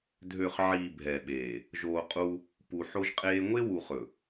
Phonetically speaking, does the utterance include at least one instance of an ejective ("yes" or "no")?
yes